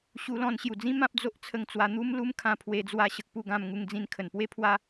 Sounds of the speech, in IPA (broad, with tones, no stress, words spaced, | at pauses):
ɕu˧lɔ̃˧n ɕju˨˩d͡zĩ˦ mã˦p̚d͡zo˦ʔt͡sʰə˧ŋt͡swa˧ n̪u˦mlu˦mkʰã˧ pʰwe˧d͡zwa˧ɕə˨k̚pu˥˧ ɡã˧m ŋu˧ŋd͡zĩ˧n kʰə˨˩npwe˦ pʰwa˦